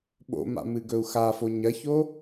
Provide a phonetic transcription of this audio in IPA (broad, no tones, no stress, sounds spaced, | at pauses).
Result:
ɓ o̰ m a̰ m ɨ ɡ ɵ u̯ x a f o ɲ ɐ ç o